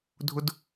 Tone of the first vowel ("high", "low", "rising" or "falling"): high